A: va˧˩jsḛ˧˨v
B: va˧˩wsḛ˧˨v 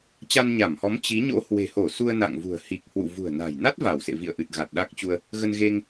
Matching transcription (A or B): B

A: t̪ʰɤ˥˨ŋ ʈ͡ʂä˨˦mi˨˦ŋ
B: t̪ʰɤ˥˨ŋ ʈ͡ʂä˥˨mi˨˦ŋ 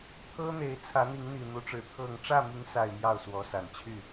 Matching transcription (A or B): B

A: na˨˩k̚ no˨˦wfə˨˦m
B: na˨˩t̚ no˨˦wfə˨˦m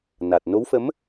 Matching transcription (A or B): B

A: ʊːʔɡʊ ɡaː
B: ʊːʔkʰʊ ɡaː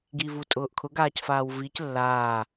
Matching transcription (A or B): B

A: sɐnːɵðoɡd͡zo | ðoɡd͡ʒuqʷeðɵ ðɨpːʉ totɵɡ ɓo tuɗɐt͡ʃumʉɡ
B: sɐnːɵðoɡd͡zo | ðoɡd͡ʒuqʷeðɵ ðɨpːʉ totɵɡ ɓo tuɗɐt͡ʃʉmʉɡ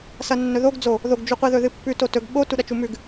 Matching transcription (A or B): A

